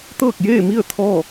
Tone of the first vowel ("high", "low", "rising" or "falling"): falling